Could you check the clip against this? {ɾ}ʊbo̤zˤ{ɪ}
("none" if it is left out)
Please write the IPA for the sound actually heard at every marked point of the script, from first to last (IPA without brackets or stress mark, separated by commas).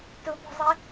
t, ɪ